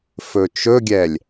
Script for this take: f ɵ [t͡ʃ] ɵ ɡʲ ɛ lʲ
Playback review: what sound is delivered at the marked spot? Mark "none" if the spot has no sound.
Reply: t͡ʃ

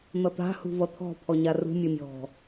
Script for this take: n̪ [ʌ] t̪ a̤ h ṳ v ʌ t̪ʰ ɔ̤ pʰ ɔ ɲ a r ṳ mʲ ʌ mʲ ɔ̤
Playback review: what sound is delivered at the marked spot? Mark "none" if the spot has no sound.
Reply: ʌ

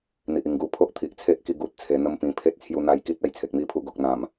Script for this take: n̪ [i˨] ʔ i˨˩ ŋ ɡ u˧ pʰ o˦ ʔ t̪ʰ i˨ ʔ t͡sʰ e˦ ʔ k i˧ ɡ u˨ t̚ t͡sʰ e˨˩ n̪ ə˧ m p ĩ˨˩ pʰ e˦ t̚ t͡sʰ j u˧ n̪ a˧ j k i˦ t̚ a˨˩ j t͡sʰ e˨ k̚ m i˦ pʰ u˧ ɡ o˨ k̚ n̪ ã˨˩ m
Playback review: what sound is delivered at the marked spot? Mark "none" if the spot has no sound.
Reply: i˨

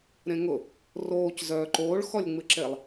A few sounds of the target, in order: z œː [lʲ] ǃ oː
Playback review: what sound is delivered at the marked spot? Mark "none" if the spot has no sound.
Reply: none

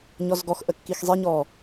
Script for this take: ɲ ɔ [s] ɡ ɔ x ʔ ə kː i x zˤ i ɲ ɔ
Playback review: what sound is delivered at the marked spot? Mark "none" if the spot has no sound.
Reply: z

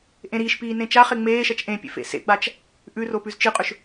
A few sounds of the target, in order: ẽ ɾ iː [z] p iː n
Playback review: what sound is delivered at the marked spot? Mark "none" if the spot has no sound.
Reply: ʃ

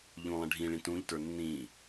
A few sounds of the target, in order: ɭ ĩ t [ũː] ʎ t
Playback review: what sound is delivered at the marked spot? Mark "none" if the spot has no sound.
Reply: ũ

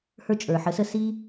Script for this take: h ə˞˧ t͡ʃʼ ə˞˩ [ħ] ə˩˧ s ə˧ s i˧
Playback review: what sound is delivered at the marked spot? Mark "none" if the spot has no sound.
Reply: ħ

